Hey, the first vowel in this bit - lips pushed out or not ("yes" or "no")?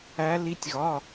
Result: no